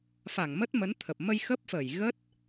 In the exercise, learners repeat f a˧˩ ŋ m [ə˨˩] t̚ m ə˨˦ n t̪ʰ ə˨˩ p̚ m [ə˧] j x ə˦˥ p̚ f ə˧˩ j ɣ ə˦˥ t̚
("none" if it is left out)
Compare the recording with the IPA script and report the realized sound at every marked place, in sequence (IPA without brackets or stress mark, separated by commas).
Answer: ə˦˥, ə˧